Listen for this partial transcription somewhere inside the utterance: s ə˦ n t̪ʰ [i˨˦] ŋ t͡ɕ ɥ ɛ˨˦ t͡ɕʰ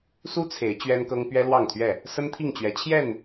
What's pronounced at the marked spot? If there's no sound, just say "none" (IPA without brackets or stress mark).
i˥˨